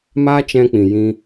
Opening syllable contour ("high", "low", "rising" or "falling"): high